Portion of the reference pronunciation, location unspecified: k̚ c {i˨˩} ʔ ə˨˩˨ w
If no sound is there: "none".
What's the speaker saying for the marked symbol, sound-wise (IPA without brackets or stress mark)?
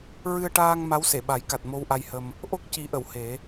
i˨˩˦